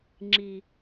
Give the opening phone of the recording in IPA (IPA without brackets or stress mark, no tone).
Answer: ŋ͡ǁ